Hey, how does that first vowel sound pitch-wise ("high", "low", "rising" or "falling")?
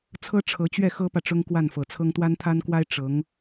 high